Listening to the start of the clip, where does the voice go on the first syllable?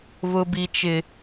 high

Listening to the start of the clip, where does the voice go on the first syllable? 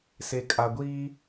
low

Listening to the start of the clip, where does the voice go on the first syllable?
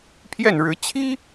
falling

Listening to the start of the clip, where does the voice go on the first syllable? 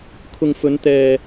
low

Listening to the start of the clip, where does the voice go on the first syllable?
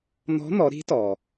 rising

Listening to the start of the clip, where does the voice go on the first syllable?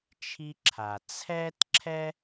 high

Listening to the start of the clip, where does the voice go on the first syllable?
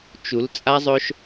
rising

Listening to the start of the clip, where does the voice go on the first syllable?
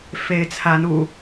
rising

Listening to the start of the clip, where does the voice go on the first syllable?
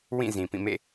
falling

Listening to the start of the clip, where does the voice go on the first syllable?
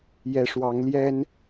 rising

